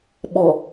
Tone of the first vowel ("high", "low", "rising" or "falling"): low